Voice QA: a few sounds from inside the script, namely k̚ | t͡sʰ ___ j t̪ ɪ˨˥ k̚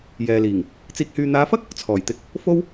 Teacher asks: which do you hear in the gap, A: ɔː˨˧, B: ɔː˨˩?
B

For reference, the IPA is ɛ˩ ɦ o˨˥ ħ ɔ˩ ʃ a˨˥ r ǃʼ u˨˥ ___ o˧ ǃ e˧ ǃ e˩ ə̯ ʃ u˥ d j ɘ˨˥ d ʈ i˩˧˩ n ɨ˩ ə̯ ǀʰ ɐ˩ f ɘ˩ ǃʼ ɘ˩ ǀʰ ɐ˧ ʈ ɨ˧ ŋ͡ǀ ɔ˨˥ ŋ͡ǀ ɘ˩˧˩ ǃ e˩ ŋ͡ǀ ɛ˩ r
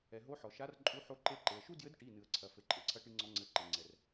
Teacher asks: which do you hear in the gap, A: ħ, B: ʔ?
A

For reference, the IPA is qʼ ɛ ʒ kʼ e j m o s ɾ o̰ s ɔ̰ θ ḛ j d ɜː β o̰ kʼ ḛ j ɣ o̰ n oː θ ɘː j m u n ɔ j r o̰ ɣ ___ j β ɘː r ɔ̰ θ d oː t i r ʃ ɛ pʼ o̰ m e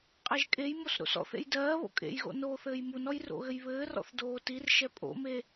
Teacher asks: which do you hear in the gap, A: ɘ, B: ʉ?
A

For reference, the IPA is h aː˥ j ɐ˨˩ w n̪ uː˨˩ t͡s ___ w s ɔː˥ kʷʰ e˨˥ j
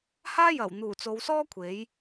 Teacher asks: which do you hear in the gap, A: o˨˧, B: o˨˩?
A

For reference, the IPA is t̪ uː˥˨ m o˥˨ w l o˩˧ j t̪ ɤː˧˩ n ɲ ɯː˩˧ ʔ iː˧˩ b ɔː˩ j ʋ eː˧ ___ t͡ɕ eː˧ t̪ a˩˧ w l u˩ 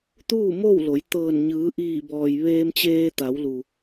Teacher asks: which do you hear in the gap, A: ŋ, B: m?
B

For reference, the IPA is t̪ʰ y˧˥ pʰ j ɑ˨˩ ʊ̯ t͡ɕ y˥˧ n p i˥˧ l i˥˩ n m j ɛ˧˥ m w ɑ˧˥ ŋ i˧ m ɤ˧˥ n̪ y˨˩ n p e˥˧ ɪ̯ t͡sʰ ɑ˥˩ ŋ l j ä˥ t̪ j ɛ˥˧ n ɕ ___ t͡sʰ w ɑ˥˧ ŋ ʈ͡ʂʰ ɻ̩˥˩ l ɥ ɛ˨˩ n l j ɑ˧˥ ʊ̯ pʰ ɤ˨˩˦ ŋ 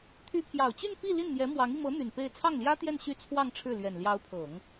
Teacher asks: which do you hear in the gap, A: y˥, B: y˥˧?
B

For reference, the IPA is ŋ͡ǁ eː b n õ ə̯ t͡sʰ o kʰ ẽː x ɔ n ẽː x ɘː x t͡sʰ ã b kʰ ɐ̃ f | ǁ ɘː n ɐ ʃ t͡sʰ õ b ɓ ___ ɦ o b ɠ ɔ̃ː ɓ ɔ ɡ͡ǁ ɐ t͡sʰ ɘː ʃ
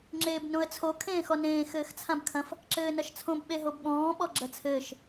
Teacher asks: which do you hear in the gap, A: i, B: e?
B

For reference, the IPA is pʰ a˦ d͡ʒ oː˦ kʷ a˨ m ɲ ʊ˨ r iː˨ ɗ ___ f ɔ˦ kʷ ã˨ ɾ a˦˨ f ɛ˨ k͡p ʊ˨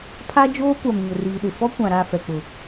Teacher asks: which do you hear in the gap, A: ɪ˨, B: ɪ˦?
A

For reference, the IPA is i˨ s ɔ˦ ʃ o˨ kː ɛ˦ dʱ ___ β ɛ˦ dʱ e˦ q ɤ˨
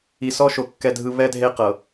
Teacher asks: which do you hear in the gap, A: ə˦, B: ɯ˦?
B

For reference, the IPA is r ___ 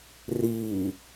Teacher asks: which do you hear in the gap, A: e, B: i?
B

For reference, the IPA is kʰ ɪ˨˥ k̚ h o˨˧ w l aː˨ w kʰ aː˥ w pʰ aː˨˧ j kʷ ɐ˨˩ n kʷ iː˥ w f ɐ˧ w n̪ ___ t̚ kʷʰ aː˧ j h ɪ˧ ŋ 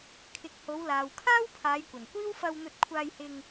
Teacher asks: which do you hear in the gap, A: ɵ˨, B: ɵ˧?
B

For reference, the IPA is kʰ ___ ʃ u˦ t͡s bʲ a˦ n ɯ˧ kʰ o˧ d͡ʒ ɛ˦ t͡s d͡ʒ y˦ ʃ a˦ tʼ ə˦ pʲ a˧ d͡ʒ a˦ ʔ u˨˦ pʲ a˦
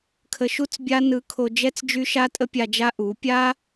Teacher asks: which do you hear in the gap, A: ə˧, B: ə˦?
A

